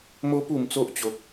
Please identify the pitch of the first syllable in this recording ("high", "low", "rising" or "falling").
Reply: high